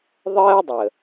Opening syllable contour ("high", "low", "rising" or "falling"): high